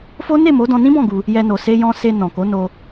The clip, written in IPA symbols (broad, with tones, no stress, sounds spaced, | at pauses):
f o˦ n e˦˨ m o˨˦ d ɔ̃˧ n ĩ˦ b ɔ̃˦˨ ɡ u˧ | j ɛ˧ n o˨ s e˧ j ɔ̃˧ s e˧ n ɔ̃˨ k o˨˦ n o˧